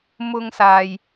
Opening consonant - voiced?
yes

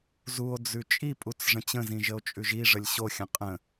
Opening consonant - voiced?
yes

